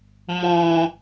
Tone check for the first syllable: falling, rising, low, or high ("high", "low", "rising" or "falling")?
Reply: high